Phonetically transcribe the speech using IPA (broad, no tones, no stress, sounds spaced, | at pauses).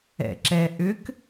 ɛ̰ ǁ ɛ ʔ ʏ k